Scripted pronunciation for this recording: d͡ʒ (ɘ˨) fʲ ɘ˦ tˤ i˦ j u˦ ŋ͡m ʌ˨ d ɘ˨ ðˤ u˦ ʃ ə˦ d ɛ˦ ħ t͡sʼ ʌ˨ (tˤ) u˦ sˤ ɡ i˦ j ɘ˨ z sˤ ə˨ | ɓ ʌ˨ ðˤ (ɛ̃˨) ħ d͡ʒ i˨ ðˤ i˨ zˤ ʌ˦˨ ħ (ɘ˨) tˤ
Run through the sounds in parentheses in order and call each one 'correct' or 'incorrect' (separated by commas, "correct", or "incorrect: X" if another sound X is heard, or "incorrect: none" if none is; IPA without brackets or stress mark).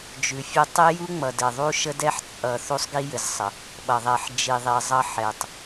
incorrect: ʉ˨, incorrect: θ, incorrect: ɛ˨, incorrect: ɛ˨